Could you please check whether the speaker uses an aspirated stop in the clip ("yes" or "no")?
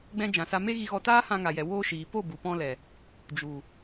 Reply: no